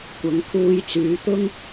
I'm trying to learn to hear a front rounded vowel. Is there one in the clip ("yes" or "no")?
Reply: yes